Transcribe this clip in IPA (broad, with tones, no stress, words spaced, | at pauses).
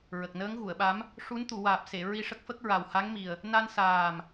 ɹə˨˩k̚nəː˧˥ŋɣu˨˩˨ə̯ɓa˧˥m | ʂu˧˥nt̪u˨˩˨waː˨˩p̚ se˨˩˨ ɹi˧ʂə˦˥k̚fə˦˥k̚ ɹa˨˩wha˧˥ŋmi˨˩ə̯ | na˧nsaː˨˩m